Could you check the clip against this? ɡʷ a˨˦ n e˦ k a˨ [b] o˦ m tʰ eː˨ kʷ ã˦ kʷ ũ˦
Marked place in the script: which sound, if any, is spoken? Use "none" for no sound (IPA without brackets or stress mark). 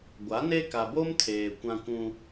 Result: b